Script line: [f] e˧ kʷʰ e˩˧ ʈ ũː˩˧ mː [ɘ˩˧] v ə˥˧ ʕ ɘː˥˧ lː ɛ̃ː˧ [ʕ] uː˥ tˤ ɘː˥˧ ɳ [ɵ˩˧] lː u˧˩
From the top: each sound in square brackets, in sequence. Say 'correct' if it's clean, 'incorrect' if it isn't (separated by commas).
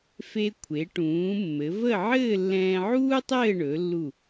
correct, correct, correct, correct